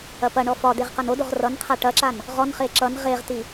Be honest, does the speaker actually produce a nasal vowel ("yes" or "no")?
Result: no